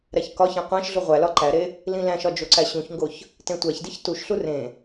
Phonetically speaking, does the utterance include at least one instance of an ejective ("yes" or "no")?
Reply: no